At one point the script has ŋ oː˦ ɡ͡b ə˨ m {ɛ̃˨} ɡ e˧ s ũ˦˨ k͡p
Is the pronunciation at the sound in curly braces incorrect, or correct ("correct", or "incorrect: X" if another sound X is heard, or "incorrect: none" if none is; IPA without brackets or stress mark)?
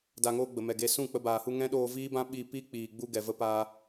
incorrect: ɛ˨